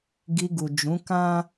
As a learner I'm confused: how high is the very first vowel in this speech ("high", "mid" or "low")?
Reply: high